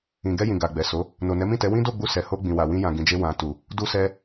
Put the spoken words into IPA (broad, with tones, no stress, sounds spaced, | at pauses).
ĩ˨ ɡ ɛ˧ j ĩ˨ ɡ a˨ ɡ͡b ɛ˨ s o˨˦ | n o˨ n ɛ˨˦ m ĩ˦˨ t ɛ˨˦ w ĩ˦ d o˦˨ ɡ͡b u˧ s ɛ˨ h o˧ ɡ͡b ĩ˨ w a˨ w ĩ˧ j ã˨ ɡ ĩ˨ d͡ʒ e˧ w ã˨ t u˨ | d u˦ s ɛ˦